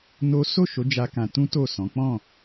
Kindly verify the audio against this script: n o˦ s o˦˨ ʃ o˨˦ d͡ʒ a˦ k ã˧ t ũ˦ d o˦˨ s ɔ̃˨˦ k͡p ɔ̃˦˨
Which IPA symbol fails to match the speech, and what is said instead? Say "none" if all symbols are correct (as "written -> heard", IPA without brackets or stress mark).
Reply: d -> t